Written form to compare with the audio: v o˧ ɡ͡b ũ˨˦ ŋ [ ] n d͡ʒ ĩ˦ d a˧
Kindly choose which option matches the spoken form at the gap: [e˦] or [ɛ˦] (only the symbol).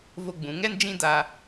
ɛ˦